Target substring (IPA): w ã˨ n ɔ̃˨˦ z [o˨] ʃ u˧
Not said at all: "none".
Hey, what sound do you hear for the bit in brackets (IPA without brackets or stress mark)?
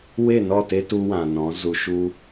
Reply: u˨